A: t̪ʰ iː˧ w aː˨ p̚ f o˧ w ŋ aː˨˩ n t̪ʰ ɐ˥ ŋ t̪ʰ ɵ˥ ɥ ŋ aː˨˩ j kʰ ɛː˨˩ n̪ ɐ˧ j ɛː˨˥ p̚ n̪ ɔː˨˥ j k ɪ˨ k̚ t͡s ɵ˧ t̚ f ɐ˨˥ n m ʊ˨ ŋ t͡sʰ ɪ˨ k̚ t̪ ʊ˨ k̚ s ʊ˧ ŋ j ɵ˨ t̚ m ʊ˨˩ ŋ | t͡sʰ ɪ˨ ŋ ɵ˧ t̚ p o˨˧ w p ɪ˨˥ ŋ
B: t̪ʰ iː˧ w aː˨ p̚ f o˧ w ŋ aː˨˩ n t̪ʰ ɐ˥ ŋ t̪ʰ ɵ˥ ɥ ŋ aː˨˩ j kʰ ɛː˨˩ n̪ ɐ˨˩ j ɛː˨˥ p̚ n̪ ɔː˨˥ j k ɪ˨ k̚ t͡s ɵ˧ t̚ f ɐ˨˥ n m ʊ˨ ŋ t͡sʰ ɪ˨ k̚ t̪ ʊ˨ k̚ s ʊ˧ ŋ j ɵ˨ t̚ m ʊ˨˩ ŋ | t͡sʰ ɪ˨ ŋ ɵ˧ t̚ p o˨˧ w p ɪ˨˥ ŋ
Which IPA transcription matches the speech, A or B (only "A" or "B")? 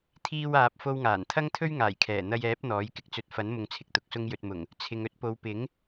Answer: A